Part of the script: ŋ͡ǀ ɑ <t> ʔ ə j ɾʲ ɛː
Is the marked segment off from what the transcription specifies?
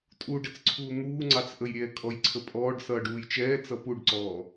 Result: yes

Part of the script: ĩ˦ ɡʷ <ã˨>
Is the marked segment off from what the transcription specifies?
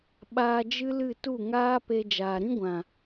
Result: no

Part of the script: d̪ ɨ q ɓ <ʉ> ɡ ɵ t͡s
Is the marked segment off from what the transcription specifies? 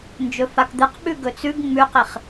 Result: no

